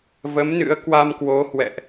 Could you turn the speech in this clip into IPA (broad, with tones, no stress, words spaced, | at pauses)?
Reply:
və˨˦mnɨ̰˧˥ə̯ kwa˧m kwo˨˦ hwɛ̰˧˨ʔ